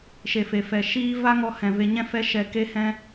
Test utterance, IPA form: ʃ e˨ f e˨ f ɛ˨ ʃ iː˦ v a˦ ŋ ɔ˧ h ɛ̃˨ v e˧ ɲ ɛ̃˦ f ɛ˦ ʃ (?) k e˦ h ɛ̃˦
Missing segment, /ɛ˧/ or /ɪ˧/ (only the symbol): ɛ˧